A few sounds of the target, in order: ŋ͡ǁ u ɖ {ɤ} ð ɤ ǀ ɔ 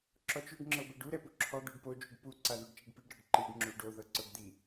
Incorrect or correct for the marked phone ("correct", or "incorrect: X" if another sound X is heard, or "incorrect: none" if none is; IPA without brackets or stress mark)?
incorrect: o